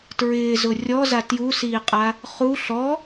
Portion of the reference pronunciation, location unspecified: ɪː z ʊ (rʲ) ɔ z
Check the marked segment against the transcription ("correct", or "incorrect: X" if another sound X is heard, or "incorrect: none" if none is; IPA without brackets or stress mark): correct